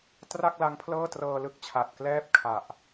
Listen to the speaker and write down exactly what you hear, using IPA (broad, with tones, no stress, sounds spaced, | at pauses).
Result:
t r a˥˩ k̚ l a˦˥ ŋ pʰ l ɤː˥˩ t r ɤː˧ l ɯ˦˥ k̚ t͡ɕʰ a˨˩ t̚ k l ɛː˥˩ p̚ kʰ a˨˩ ʔ